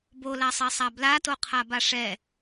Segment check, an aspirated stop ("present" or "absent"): present